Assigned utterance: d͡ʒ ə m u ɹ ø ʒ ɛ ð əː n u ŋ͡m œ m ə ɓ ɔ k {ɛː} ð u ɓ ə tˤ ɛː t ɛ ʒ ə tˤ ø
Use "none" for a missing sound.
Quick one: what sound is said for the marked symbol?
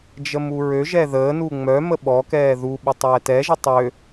ɛː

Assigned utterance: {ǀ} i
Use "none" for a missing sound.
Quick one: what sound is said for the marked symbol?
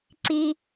ǀ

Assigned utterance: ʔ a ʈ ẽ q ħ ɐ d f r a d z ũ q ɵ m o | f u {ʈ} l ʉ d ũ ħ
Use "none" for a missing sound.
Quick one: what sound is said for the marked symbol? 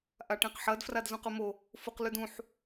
q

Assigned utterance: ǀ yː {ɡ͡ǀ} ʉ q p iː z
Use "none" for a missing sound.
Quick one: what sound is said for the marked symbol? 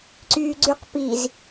ɡ͡ǀ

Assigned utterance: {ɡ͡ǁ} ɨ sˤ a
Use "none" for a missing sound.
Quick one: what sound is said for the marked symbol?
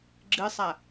ɡ͡ǁ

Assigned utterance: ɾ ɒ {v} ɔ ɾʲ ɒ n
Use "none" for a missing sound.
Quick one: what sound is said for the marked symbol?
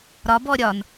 b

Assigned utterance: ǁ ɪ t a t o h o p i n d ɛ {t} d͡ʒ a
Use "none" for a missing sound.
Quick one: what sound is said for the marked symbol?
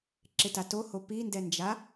n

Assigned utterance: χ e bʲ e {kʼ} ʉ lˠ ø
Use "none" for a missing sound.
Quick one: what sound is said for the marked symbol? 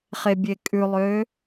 kʼ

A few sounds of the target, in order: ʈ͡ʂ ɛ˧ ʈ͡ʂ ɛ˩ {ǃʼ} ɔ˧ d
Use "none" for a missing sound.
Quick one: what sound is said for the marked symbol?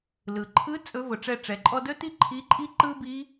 ǃʼ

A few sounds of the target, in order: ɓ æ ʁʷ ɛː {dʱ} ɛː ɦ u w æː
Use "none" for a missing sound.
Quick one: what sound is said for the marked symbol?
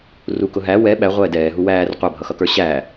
d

